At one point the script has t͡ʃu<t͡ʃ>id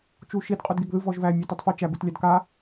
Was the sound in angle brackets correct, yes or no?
no